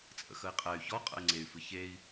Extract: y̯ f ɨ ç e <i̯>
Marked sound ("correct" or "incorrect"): correct